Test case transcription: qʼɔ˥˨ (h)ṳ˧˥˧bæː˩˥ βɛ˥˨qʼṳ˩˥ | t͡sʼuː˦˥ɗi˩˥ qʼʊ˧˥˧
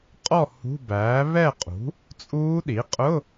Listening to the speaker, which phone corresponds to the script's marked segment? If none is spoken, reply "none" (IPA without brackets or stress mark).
h